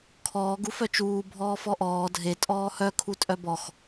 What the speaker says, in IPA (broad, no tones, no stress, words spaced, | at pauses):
kʰɔːɡ ufœt͡ʃuː bʱɔːfɔʔɔː dʱe tʼɔːhœ kʰutʼœbɔx